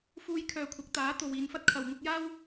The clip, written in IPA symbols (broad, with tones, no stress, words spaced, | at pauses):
fuː˧jkʰœː˨ kʷʰɐ˨˥k̚t̪aː˨˥t̪o˨w iː˨˧nfɐ˥t̚ kʰɐ˨˩wŋʊ˧k̚jaː˥w